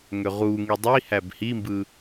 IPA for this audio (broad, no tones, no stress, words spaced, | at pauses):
ŋøʁuŋi dˤi hæbhimbɯ